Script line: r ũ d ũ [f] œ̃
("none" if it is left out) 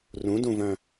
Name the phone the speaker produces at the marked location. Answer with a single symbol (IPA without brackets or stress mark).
v